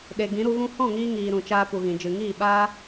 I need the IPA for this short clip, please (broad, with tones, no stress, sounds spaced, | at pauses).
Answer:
ɗ e˨ ɡ ĩ˨˦ ɾ u˧ ɣ ũ˦ h ɔ̃˦˨ ŋ iː˧ ŋ iː˨ ɾ ũ˨ t͡ʃ aː˧ p u˨ ɣ ĩ˨ d͡ʒ ɨ˨ ŋ iː˦˨ ɓ aː˦